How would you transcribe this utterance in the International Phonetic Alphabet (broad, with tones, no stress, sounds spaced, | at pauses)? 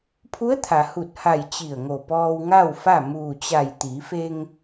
pʰ u˧˥ ə̯ t̪ʰ a˩ h u˧˩ t̚ h a˧˩ j t͡ɕ i˧˩ ə̯ ŋ o˧˩ p ɔː˧ w ŋ a˥˨ w f a˥˨ m uː˧˩ t͡ɕ a˧˩ j t̪ i˩˧ f e˧ ŋ